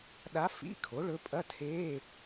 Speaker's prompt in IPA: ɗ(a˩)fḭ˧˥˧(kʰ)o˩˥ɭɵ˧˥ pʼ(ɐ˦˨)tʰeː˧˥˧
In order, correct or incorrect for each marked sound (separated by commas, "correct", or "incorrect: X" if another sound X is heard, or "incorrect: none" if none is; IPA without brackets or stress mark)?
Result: incorrect: a˧˥, correct, incorrect: ɐ˧˥˧